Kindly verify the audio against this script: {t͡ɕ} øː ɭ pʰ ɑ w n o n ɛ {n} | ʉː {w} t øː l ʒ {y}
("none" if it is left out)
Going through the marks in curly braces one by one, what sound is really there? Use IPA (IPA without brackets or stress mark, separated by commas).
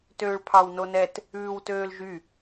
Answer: t, t, w, y